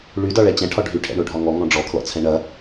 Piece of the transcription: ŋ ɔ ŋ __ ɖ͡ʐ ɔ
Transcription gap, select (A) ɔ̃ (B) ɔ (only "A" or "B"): A